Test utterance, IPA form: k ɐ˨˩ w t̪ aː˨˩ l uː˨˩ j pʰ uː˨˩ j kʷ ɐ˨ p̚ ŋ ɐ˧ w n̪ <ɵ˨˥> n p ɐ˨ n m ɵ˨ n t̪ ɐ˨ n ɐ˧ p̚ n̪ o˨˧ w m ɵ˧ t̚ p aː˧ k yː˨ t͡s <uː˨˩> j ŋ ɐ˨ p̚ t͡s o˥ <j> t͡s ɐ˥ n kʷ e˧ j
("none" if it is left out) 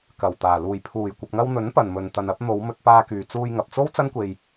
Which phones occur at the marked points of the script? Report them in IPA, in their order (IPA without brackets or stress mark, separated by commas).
ɵ˨˥, uː˧, w